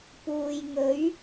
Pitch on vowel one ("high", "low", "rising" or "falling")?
low